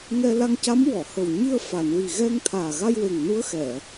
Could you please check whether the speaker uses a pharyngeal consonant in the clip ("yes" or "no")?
no